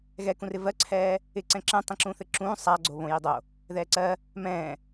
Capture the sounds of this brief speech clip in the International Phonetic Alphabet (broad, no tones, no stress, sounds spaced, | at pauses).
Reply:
ɣ ɛ k ũ r ɪ v ɜ ǀʰ ɛː | ɪ ǀ ɛ̃ ǁ ɛ̃ tˤ ĩ ǁ ũː θ ɘ ǁ ũː sˤ a ɡ͡ǀ o β õ j i dˤ o | ð ɛː ǀ ɜ | m ɛ̃ː